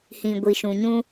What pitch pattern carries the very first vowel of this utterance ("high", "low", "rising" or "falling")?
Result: low